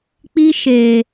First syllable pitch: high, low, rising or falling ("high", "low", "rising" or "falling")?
high